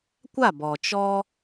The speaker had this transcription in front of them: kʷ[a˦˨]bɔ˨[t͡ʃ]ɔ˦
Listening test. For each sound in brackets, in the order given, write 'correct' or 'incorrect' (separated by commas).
correct, correct